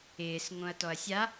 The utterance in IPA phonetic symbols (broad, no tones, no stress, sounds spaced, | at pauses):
ɪː s ŋ õ ɐ̯ t ɔ ɐ̯ sʲ a